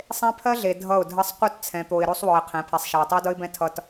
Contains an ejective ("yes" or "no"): no